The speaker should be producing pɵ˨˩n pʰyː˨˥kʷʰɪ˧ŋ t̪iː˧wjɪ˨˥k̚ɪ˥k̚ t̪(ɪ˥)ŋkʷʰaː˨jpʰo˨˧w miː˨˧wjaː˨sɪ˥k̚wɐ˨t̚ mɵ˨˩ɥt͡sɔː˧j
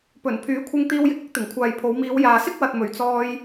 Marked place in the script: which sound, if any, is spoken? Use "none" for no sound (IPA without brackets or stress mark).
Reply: ɪ˨˩